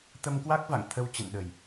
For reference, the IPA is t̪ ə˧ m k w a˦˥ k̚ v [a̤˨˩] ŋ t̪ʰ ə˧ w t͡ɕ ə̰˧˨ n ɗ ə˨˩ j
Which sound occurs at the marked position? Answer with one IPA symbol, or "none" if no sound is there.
a̰˧˨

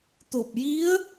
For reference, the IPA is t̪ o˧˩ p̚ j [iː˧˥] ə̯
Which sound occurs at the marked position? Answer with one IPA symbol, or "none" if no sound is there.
i˧˥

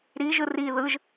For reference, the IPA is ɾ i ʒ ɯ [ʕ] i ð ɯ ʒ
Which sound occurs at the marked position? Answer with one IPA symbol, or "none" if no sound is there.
r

